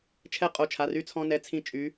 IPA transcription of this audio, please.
t͡ʃʰ ɛ˧ qʼ o˩˧˩ t͡ʃʰ a˩˧˩ r y˧ t͡sʰ ɔ̃˧ n ɛ˩˧˩ t͡sʰ ĩ˧ t͡ʃʼ y˩˧

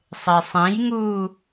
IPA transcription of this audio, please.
sˤ e sˤ ẽ j ŋ uː

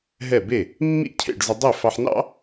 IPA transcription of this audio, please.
ɦ ɛ˥˩ b e˥˩ | mː ḭ˥˩ cʰ ḛ˥˩ ɖ z ə˧ dˤ e˥˩ f ɑ˧ ħ n ɑ̰˥

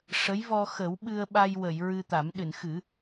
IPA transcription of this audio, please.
ʂ ə˧˥ j v ɔ˧ x ə˨˩˦ w ɓ ɨ˧ ə̯ ɓ a˧ j w ə˨˩˨ j ɹ ɨ˧ t̪ a˨˩˦ m ɗ ɨ˨˩˨ n x ɨ˨˩˦

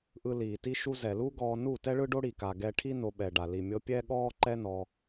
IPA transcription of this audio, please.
ʔ ɯ˧ l iː˨ t i˧ ʃ u˧ z ɛ˨ l u˦ ɡ ɔː˧ n u˦˨ t ɛ˦ ɭ ɯ˦ ɖ o˦ ɽ i˨ k a˧ ɡ ɛ˧ ʈʰ i˦ n o˧ ɓ ɛ˨ ɖ a˨ l i˨ mʲ ɤ˧ pʲ ɛ˦ ɠ ɔː˦ ǃ ɛ˦ n ɔ˧

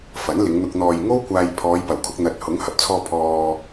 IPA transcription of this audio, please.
f ɐ˨˥ n l ɪ˨˧ ŋ n̪ ʊ˧ k̚ n̪ ɔː˨ j ŋ o˥ w kʷ aː˧ j pʰ ɔː˨˧ j p ɐ˨˩ w kʰ ʊ˧ k̚ n̪ ɐ˨ t̚ h ʊ˨˥ ŋ h ɐ˨ p̚ t͡sʰ ɔː˧ pʰ ɔː˧

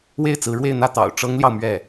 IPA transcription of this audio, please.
w e˥˩ ɪ̯ t͡s ɹ̩˧˥ ɻ w e˥˧ ɪ̯ n̪ ä˥˩ t̪ ɑ̰˨˩ ʊ̯ ʈ͡ʂ ɤ˥ ŋ l j ɑ˨ ʊ̯ m ɥ ɛ˥˩

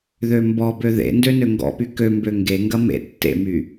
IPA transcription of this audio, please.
ð ø m b ɔ b ø ð ḛ n d ø n ø ŋ ɡ ɔ̰ p y k ø m b ø ŋ ɡ e ŋ ɡ ɐ m ḛ tː ḛ m y

